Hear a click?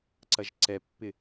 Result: yes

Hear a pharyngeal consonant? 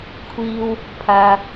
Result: no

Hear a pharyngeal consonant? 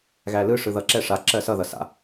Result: no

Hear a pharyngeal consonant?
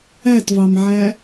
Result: yes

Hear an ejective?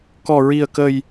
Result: no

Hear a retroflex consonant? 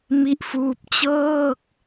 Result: no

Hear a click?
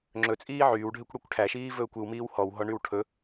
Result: yes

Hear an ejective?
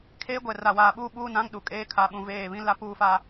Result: yes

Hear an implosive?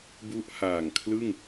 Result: no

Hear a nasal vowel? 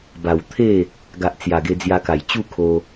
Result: no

